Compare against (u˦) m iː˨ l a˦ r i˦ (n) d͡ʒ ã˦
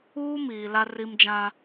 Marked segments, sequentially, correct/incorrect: incorrect, incorrect

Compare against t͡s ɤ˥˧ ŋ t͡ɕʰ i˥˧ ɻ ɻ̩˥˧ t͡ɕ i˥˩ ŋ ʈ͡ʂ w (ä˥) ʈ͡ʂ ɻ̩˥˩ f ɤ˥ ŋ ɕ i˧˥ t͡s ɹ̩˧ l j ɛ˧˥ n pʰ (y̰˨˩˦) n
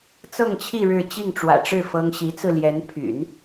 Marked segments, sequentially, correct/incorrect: incorrect, correct

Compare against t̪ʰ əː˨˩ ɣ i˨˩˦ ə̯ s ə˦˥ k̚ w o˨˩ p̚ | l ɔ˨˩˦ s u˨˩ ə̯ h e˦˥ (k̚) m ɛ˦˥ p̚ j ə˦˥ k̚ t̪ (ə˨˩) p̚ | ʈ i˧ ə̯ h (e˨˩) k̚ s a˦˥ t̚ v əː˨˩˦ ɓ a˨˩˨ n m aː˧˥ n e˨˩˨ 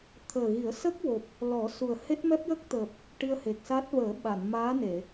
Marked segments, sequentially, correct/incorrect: incorrect, incorrect, correct

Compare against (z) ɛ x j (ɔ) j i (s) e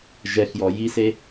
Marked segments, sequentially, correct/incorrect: incorrect, correct, correct

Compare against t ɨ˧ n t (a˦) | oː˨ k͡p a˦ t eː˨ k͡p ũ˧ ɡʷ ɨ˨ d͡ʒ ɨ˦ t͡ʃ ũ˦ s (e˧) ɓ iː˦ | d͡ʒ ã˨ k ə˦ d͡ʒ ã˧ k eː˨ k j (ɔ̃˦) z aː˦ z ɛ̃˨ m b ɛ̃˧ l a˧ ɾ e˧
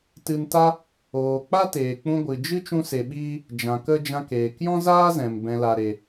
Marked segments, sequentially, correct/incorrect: correct, correct, correct

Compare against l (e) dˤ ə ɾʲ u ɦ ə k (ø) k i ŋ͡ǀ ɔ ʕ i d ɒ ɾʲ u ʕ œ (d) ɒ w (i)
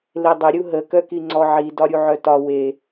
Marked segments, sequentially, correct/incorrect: correct, incorrect, incorrect, incorrect

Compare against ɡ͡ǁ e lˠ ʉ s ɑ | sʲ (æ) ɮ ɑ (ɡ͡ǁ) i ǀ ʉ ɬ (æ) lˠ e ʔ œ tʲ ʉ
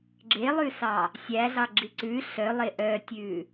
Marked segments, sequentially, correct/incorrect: correct, correct, incorrect

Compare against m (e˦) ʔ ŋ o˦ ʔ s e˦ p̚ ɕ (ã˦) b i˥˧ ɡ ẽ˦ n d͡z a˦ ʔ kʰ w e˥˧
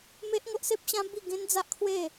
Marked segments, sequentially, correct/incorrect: correct, correct

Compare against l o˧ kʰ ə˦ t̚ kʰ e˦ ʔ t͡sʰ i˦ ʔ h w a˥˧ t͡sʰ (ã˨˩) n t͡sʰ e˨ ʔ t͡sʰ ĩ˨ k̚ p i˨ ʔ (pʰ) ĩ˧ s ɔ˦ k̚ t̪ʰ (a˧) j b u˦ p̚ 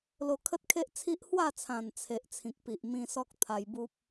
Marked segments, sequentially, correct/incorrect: correct, incorrect, correct

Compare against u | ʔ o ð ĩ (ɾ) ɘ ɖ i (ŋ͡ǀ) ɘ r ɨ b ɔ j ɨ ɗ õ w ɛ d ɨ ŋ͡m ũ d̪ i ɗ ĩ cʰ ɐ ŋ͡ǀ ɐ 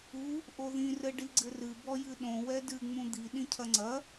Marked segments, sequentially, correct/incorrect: incorrect, incorrect

